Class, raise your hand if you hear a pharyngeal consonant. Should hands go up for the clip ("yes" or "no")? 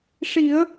no